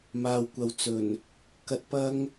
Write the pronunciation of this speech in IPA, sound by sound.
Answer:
maː˨wkʷɐ˨w t͡sɵ˨˩n | kɐ˧t̚ pɐ˥ŋ

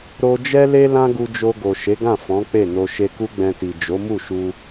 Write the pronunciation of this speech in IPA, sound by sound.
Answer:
ɾo˧d͡ʒɛ˦le˦ lã˦ɡu˧d͡ʒo˧ ɡo˨ʃe˨˦ɡã˦˨ fɔ̃˨˦k͡pe˦˨no˧ ʃe˧ku˦ɡ͡bɛ̃˧ti˨ d͡ʒo˨˦mu˦˨ʃu˧

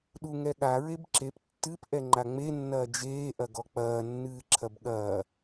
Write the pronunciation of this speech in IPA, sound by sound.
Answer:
ɗuŋɛɠa ɹebǁep tːɨp ʔɛŋ͡ǃaŋ͡me nːɐːd͡ʒeː ʔɐɡɔk͡pɐː nːɨːǁʰɐbɠɐː

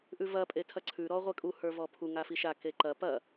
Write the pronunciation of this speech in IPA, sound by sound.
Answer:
ʔʉvɐ pʼetʰɐǀʰʉ ɾɔʁʷekʼu hə˞vɔpʰu ŋafiʃa keǃɐ pɐ

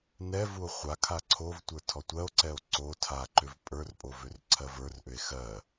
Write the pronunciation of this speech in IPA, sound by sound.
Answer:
nɛ vuo̯χʷakʰa ǀʰovtʷə˞ tʰɔtʷɜo̯ǀɛo̯ ǀo tʰaǃʏv pʼə˞rpʼo vʏrǀʰɜvə˞rʔʏe̯ xɜ

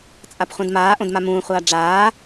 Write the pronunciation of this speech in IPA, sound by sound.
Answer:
t͡sʼapχʷãdmaːʔõd mamũːχʷaː ɖ͡ʐaː

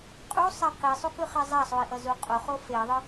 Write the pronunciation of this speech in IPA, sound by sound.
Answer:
qʼusˤɛ qisˤukɯχe zˤasˤui̯ʔʌzu qʼoχo feðˤɯ

